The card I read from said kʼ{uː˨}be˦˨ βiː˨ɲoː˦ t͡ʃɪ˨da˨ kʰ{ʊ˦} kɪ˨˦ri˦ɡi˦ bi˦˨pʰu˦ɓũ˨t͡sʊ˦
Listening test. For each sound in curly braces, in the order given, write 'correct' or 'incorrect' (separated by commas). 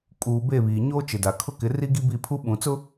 correct, correct